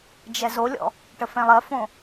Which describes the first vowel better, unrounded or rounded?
unrounded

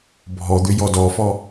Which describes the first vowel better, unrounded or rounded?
rounded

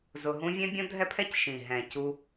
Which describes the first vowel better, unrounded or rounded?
rounded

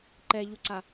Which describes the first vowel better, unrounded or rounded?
unrounded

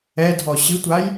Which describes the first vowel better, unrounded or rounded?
unrounded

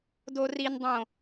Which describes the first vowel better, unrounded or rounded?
rounded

